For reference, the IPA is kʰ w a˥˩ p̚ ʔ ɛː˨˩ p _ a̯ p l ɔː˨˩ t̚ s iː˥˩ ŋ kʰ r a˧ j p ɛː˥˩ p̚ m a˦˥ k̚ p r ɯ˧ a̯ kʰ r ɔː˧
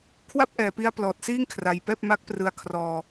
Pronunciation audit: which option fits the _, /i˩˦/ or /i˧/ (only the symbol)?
i˧